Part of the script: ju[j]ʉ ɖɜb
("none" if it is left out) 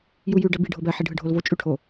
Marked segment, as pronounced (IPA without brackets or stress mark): j